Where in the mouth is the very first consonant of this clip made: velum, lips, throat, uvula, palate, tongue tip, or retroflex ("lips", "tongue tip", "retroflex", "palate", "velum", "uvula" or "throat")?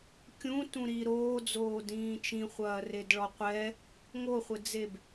velum